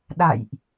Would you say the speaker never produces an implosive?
no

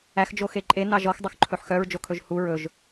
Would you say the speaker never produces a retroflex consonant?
yes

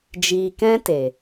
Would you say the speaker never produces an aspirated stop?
yes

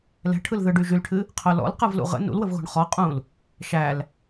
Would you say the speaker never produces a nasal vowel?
no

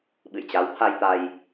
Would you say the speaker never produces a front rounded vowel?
yes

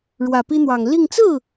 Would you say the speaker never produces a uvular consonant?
yes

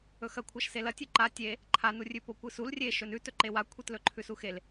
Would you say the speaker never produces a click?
no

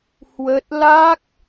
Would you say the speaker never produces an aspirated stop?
yes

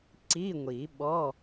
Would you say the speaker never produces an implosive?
no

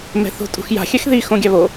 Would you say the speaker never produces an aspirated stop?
yes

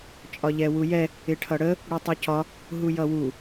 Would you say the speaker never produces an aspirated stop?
no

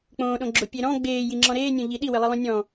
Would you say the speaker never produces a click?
no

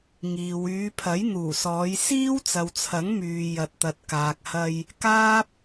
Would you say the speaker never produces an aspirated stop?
no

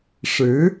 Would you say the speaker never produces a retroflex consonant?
no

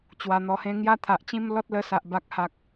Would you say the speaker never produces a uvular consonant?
yes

